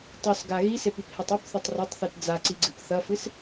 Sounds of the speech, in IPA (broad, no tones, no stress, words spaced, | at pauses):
tˤʉsɡa ɣisepiphetˤ ɵpθɵtˤ rɐtˤθit d͡zaǀiɡ͡ǀɨp θɐfɨs